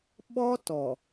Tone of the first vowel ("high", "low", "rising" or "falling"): high